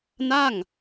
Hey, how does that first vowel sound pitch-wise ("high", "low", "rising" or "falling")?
falling